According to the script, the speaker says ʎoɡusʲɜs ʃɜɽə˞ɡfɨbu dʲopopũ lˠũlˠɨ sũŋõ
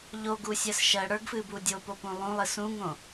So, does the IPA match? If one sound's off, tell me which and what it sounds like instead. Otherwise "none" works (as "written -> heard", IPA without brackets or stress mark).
none